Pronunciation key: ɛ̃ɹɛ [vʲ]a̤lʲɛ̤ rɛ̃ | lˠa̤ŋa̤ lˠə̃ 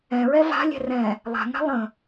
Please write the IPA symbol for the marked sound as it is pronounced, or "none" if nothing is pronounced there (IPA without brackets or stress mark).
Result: v